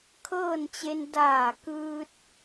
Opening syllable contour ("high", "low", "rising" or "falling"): falling